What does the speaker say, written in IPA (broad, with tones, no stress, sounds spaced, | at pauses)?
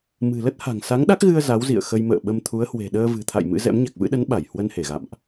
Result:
m ɨ̤˨˩ l ə˦˥ t̚ h a̤˨˩ ŋ s a˨˦ ŋ ɗ a˦˥ k̚ ɣ ɨ˧ ə̯ z a˨˦ w z ḭ˧˨ ə̯ x ə˧ j m ə̰ː˧˨ ɓ ə˧ m t̪ʰ u˨˦ ə̯ h w e̤˨˩ ɗ əː˧ v ɨ̤˨˩ t̪ʰ a̰˧˨ j m ɨ̰˧˥ z ɛ̰˧˥ m ɲ a˨˩ k̚ v ɨ̰˧˥ ɗ ə˨˦ n ɓ a˧˩ j h w ə˧ n h e˧˩ ɣ a̰˧˨ m ʔ